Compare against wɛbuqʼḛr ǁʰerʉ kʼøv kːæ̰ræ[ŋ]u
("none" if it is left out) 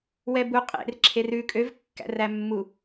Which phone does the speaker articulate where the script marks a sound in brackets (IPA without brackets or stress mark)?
mː